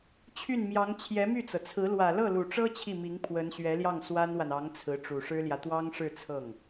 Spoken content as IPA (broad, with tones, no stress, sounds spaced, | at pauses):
t͡ɕʰ y˥˩ n m j ɑ˧˥ ŋ t͡ɕʰ j ɛ˧˥ m y˥˩ t͡s ɤ˩ t͡sʰ ɹ̩˧˥ l w ä˨˩ l ɤ˥˩ l u˨˩ ʈ͡ʂ ɤ˥ t͡ɕʰ i˥˩ m i˧˥ ŋ pʰ w ə˧˥ n ɕ ɥ ɛ˧˥ l j ɑ˥˩ ŋ s w a˥ n w a˨ n ɑ˧˥ ŋ t͡sʰ ɹ̩˧˥ ʈ͡ʂ u˨˩ ʂ ɻ̩˥ l j ä˨ t̪ w ɑ˥ ŋ ʂ ɻ̩˥˧ t͡sʰ ɤ˥˩ ŋ